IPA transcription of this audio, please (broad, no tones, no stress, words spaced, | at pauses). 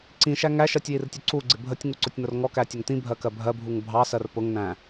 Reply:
ǀĩʃæ ŋæʃɜtʲjirtʲʊ ǀuɡ͡ǀɪ bʱətʲŋuǀʊtʲnʊr ŋɔkætʲʊŋ t̪ĩbʱɜkɜ bʱɜbʱuŋ bʱɑsɜr pʊŋnæ̃